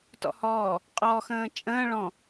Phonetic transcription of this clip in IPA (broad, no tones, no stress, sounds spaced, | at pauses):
t ɔ̰ h ɔː | qʼ ɔ x ə̃ː t͡ʃʼ ə̃ː ɭ ɔ̃